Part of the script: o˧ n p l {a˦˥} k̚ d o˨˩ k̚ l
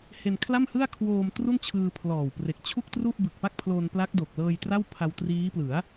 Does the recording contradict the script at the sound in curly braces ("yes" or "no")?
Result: no